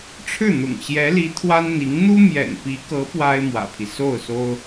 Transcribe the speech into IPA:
ʈ͡ʂʰ ɻ̩˥˩ n̪ ʊ̰˨˩ ŋ ɕ j ɛ˧˥ l i˧˥ t̪ʰ w a˥ n n̪ i˧˥ ŋ n̪ u˥ m j ɛ̰˨˩ n p i˧˥ k ɤ˧˥ p w a˥ ɪ̯ m w ä̰˨˩ pʰ i˦ s o˥˩ ʊ̯ s o˥ ʊ̯

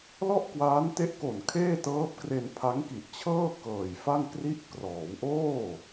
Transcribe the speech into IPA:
l ɔ˥˩ ʔ k w aː˦˥ n t e˦˥ ʔ k o˨˩ n kʰ eː˥˩ t ɤː˦˥ p̚ k r e˧ n pʰ a˦˥ ŋ k i˨˩ ʔ t͡ɕʰ ɤː˥˩ k ɤː˨˩ j f a˥˩ ŋ k r i˦˥ ʔ k r ɔː˩˦ w ʔ oː˥˩

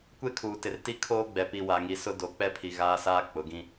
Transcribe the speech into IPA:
kʷ e˦ kʰ uː˨ t ɪ˨ r t i˦ kʰ oː˦ ɡ͡b ɛ˨ p i˨ w a˨ ŋ i˨ s ʊ˦ d o˨˦ k͡p ɛ˦ pʰ i˨ ɣ aː˦ s aː˦ k͡p ʊ˨˦ ɡ ĩ˦

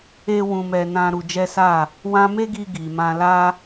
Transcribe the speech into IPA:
e˦ w ũ˧ m ɛ˧ n ã˧ ɾ u˧ d͡ʒ ɛ˦ s a˦˨ | w ã˦ m e˦ ɡ i˧ ɡ i˨ m ã˧ l a˦

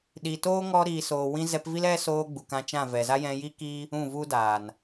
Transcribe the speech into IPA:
ɗ i˨ t oː˦ ŋ ɔ˧ ɾ iː˨ s oː˨ w ĩ˧ z ɛ˧ p v i˦ l ɛ˦ s oː˧ ɡ͡b u˨ k ã˧ t͡ʃ ã˦˨ v ɛ˨ z a˦ j ɛ̃˧ j i˦ k iː˦ | ũ˦˨ v u˦ d aː˨ n

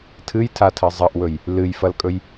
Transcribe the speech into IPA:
tʰ ɨ j tʰ a tʰ ɐ zˤ ɐ ʔ w ɵ j | l ɨ j f ɐ l kʼ ɵ j

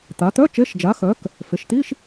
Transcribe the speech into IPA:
t̪ a˩˧ t̪ œ˧˥˧ t͡ʃ e˧˥˧ ʃ d͡ʒ a˩˧ x œ˩˧ k | f e˩˧ ʃ t̪ i˧˥˧ ʃ

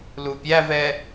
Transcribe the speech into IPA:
l u pʲ æ v ɛ

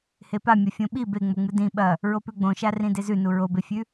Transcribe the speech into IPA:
h e p a mʲ ɐ fʲ õ ɓ i b e ŋ͡m o ŋ͡m ɨ d ĩ ɓ ɐ | ɹ o p ʉ ɡ͡b õ ʃ a r ĩ d e z ʉ n u ɹ o b e fʲ ʉ

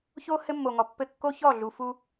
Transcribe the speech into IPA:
ç o˦ h ɘ˦ mː o˨ ŋ ɔ˨ pː ɘ˦˨ kː o˦ ç ɔ˦˨ ɮ u˨ f u˦

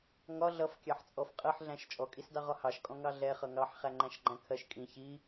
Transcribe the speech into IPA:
ŋ ɒ ɮ ʌ f kʲ ɑ ħ t͡sʼ ɔ f qʼ ɜ ħ ɮ æ̃ ʃ t͡ʃʼ ɔ kʼ i s d ɑ ʁ ɒ h ɑ ʃ kʼ ɔ̃ ŋ ɑ ɮ ɛ χ ʌ ŋ ɑ ħ χ æ ŋ͡ǃ æ̃ ʃ ɡ͡ǃ æ̃ kʰ ɜ ʃ kʼ ĩ ç i

